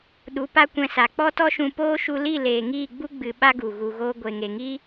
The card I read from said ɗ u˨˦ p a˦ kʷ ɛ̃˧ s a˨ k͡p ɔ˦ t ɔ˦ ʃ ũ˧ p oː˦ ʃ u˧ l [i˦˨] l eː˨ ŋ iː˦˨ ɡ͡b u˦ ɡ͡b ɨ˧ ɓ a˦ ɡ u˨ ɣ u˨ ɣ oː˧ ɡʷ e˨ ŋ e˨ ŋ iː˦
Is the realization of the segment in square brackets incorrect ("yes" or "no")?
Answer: no